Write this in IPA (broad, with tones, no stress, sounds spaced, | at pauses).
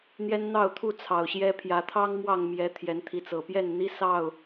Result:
n̪ j ɛ˦ n n̪ ɑ˥˨ ʊ̯ t̪ʰ u˥˨ t͡sʰ ɑ˨˩ ʊ̯ ɕ j ɛ˦ pʰ j ä˨˦ t̪ʰ ɑ˦ ŋ m w ɑ˥˨ ŋ m j ɛ˨˦ t̪ʰ j ɛ˨˦ n t̪ʰ i˨˦ t͡s ɤ˨˩ p j ɛ˥˨ n n̪ i˦ s ɑ˥˨ ʊ̯